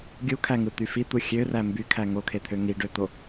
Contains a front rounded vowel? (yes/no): yes